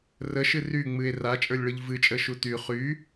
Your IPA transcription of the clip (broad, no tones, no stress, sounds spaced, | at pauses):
r ə ʃ ɨ r y ŋ͡m ɨ e̯ r a t͡ʃʼ ə˞ lʲ ɭ ɯ ʎ v ɨ t͡ʃʼ ə ʃ u t y χ y